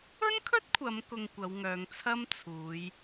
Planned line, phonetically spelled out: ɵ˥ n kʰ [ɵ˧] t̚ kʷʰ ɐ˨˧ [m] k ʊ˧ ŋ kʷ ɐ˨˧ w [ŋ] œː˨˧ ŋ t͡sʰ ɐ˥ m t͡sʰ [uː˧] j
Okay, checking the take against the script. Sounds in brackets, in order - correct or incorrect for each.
incorrect, correct, correct, incorrect

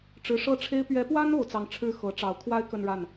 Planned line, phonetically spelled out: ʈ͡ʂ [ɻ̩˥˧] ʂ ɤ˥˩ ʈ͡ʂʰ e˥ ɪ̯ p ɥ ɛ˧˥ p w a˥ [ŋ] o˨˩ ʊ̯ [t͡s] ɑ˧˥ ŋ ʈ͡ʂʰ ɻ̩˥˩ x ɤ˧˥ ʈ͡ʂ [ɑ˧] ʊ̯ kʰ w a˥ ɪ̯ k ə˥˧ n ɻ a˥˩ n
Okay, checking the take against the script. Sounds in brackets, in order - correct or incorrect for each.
incorrect, incorrect, correct, incorrect

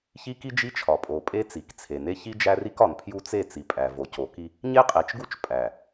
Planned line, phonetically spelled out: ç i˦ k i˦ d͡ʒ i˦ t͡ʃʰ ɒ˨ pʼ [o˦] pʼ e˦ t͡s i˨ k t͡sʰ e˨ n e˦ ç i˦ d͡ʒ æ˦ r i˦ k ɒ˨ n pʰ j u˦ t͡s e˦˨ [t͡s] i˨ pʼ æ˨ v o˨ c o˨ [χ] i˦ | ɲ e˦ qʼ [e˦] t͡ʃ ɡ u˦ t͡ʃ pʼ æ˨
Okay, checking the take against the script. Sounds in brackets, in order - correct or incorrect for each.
incorrect, correct, incorrect, incorrect

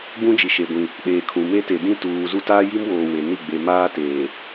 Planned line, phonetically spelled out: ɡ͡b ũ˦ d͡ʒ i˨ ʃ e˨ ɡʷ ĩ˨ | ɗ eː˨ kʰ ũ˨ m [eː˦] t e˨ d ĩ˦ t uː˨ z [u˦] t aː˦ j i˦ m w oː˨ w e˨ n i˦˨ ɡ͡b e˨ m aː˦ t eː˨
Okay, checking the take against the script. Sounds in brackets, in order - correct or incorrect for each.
incorrect, correct

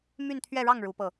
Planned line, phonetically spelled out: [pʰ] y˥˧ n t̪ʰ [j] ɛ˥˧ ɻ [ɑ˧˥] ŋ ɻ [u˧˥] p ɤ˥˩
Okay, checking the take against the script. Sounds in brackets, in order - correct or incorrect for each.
incorrect, incorrect, incorrect, correct

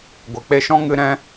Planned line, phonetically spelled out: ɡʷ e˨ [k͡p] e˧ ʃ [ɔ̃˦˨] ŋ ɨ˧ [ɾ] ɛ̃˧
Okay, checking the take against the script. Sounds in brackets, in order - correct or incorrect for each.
correct, incorrect, correct

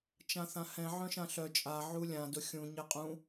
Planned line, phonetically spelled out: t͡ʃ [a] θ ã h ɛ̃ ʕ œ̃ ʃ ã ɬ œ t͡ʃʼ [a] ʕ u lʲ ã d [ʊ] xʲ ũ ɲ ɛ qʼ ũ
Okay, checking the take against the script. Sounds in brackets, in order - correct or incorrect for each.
incorrect, correct, correct

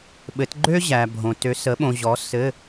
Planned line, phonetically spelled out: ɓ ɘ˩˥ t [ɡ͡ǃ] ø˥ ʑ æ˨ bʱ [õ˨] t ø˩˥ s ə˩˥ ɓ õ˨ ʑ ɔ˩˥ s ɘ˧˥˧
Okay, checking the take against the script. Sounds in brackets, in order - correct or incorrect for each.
correct, correct

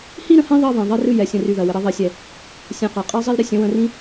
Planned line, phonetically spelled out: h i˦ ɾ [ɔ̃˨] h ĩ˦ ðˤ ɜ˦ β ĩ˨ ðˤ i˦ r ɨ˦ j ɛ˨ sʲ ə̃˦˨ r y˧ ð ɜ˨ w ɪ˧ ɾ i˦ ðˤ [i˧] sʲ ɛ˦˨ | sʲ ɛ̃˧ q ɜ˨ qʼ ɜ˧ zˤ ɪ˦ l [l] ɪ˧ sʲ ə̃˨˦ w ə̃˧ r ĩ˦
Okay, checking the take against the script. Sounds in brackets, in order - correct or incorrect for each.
incorrect, correct, incorrect

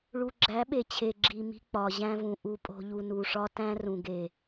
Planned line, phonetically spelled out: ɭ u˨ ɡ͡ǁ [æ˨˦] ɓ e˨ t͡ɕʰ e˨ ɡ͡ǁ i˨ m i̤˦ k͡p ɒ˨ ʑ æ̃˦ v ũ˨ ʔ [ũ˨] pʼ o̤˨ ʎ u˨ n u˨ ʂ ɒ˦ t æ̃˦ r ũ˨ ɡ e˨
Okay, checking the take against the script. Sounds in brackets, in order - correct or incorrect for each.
correct, incorrect

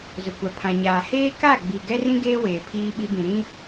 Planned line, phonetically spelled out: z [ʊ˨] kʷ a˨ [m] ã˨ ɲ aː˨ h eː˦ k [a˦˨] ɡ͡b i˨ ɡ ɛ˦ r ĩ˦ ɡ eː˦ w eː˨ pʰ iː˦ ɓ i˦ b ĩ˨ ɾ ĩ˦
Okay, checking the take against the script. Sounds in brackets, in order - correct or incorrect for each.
correct, incorrect, correct

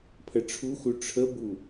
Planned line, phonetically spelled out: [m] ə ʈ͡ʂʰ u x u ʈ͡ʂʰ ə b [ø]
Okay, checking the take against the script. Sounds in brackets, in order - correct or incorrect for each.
incorrect, incorrect

